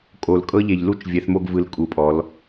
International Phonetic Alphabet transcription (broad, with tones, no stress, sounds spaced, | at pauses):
kʼ o˩ l kʼ ɤ˧ ʎ e˩ ʎ l u˧ t͡ʃ vʲ ɛ˩˧ θ m o˧ ɡ v ɯ˩˧ l kʼ u˩˧ pʼ ɔ˩˧ l